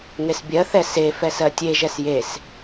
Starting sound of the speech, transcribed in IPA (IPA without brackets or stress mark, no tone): ŋ